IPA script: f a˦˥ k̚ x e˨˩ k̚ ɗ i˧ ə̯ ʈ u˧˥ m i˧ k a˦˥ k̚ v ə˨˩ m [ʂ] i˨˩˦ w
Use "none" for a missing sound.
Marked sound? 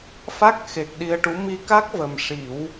ʂ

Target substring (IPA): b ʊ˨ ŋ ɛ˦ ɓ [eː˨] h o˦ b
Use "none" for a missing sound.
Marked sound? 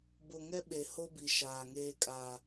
e˨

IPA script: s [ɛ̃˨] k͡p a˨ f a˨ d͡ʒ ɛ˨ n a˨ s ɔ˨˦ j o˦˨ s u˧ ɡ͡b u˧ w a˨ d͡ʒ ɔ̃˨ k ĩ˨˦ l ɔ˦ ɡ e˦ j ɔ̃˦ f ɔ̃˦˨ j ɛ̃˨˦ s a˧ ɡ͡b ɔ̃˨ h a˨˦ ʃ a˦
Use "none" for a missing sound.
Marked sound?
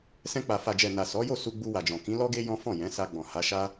ɛ̃˧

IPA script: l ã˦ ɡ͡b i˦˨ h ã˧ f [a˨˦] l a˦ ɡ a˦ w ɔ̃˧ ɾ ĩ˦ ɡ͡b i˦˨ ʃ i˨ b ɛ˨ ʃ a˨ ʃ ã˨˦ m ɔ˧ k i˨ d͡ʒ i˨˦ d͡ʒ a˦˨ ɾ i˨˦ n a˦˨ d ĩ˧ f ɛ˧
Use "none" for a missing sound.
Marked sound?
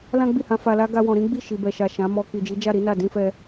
a˧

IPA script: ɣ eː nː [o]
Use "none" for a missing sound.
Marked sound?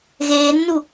u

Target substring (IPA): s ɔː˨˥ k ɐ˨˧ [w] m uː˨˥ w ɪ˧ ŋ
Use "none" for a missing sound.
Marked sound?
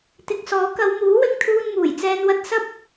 w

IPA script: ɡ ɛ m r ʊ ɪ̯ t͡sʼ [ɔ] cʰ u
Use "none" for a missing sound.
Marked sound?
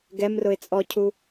ɔ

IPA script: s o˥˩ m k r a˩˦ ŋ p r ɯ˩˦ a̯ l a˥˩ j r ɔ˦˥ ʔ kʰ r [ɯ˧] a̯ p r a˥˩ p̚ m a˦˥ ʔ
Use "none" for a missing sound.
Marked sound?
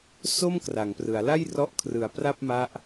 ɯ˨˩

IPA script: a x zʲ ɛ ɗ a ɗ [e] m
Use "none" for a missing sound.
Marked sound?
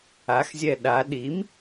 i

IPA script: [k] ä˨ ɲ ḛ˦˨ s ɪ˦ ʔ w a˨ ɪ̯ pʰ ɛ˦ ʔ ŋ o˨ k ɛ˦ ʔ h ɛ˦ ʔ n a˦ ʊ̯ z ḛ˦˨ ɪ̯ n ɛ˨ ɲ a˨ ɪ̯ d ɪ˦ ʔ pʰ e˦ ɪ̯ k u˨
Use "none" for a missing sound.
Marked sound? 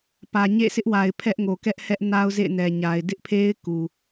p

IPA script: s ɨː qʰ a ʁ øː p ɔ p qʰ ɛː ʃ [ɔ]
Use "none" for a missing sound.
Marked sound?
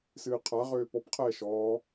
ɔ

